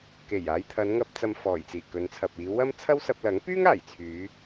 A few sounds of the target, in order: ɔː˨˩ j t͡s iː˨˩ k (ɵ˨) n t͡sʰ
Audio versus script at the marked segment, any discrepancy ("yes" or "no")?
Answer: yes